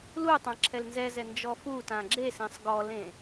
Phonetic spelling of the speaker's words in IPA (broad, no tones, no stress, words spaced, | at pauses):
lu tˤãǁʰɛlnzɛzɛ nd͡ʒɔfutã ɡ͡ǁesẽsˤ ɡɔlẽ